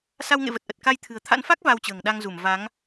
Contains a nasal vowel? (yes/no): no